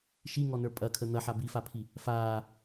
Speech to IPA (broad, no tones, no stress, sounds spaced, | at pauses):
ʃ i ŋ ɔ n ə˞ pʼ ɐ kʰ ə n̪ ɐ ħ a b i f a pʰ i | f aː